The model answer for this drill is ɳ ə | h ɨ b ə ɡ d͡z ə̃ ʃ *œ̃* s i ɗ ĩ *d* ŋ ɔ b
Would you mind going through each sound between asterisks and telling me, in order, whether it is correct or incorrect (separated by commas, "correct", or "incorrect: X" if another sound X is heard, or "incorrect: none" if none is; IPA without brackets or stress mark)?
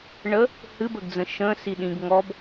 incorrect: ə̃, incorrect: ɡ